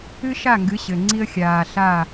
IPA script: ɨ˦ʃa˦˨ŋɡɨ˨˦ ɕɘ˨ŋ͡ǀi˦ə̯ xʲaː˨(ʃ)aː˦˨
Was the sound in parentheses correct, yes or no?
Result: no